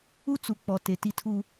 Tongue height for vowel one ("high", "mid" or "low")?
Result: high